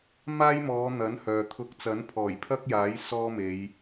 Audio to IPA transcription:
m aː˥ j m ɔː˨˧ n̪ ɐ˨˥ n h œː˨ t̪ʰ ʊ˧ k̚ t͡s ɐ˨˥ n pʰ ɔː˨˩ j pʰ ɐ˥ k̚ j aː˨˥ j s ɔː˥ m e˨˧ j

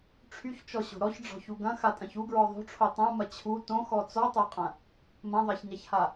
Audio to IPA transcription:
ʈ͡ʂʰ y ç t͡ʃ ɔ ɕ o̤ ɾ ɔ ç ɖ͡ʐ ɔ̤ ç u ɡ ɐ̃ x a tʼ ɐ̃ ç u ɡ ɹ ɔ ðˤ o̤ ʈ͡ʂʰ o tˤ ã m ɐ t͡ɕʰ u t õ x ɔ t͡s ɔ tˤ a qʼ ɐ̃ | m ɐ̃ ðˤ a ç ɲ a ç h a

